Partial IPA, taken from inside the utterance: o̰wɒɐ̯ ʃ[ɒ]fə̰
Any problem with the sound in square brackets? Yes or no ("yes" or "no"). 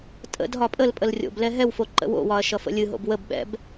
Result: yes